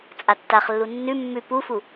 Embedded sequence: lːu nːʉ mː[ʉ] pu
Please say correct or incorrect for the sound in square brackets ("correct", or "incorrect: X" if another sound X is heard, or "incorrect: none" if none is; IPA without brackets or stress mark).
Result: correct